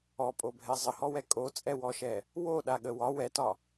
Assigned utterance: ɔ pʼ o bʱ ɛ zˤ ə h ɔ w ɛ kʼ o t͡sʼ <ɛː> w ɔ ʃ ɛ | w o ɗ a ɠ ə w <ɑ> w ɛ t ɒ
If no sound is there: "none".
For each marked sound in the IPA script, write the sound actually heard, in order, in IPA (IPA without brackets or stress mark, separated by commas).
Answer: ɛ, ɒ